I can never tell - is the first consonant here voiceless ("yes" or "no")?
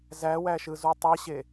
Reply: no